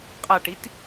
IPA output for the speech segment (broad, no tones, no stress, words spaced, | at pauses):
qʼaʈit